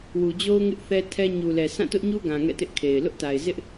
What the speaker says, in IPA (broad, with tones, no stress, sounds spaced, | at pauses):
w u˨ d͡ʑ o˦ ʊ̯ ŋ ɪ˦ ʔ θ ɛ˦ tʰ ɛ˦ ɲ u˨ l ɛ˨ sʰ ã˦˨ t ʊ˦ ʔ ɲ u˦ ɡ ã˨ ŋ ɛ̰˦˨ t ɪ˦ ʔ kʰ e˨ ɪ̯ l ʊ˦ ʔ t a˨ ɪ̯ z ɪ˦ ʔ